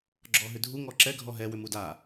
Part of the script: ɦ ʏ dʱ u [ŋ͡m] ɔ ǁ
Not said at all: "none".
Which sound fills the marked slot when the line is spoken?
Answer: ŋ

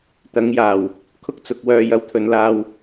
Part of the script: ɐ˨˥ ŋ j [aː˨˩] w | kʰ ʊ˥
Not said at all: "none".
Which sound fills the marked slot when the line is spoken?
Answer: aː˨˩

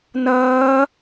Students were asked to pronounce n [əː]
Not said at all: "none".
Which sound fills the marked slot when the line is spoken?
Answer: ʌː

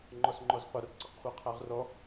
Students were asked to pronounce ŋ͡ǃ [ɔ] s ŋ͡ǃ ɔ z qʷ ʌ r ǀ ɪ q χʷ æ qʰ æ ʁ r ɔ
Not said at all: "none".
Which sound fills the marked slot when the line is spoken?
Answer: ɔ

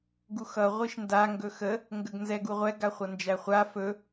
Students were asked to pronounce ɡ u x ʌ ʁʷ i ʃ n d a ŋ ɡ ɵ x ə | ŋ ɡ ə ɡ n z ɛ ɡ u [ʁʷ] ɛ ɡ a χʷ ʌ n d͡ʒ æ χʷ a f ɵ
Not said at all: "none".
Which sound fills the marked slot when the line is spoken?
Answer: ʁʷ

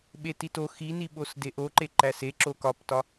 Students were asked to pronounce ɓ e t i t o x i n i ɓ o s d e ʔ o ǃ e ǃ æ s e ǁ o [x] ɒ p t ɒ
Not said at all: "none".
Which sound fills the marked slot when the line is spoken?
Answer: k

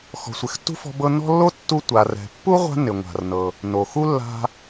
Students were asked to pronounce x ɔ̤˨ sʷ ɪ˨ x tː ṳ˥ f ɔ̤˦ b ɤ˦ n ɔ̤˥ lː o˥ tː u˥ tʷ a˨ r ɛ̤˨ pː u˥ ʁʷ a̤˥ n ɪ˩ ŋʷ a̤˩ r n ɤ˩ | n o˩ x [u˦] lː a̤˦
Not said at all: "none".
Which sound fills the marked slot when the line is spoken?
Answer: u˥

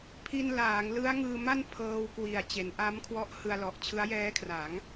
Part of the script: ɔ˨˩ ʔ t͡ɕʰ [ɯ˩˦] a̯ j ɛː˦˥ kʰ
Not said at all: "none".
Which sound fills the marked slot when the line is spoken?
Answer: ɯ˦˥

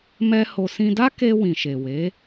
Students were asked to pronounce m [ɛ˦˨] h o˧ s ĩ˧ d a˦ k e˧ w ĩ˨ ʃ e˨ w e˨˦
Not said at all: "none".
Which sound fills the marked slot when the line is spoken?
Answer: ɛ˦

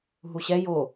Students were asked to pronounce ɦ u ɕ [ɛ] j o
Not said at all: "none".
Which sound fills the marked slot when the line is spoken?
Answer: ɛ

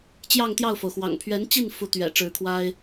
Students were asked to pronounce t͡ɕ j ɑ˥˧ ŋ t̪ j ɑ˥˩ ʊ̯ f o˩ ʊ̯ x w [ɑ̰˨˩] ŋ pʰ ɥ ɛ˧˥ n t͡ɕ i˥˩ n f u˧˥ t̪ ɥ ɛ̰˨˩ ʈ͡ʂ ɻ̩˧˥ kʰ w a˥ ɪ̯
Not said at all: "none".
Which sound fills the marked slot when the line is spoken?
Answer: ɑ̰˨˩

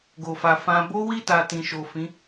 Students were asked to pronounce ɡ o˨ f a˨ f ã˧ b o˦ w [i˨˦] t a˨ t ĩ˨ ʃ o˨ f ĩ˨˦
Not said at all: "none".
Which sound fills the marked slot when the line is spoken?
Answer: i˦˨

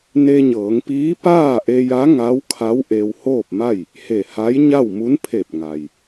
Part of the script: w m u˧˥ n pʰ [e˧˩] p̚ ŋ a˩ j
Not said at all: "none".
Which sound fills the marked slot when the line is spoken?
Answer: e˧˩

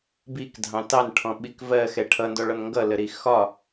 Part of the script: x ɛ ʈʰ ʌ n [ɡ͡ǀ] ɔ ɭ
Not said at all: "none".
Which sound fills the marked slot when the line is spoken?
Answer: d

